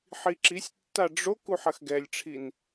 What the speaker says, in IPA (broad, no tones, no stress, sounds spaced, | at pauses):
ħ i ǁ i sʲ tː a ɖ͡ʐ o k u ħ ɐ x ɡ ɛ lʲ ʈ͡ʂʰ i n